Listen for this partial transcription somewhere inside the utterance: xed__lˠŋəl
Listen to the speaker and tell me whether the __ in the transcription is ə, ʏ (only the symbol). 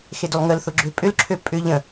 ʏ